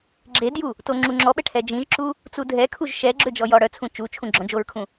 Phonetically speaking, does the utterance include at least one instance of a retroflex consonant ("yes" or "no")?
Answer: yes